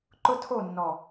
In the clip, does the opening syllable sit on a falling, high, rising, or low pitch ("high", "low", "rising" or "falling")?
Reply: high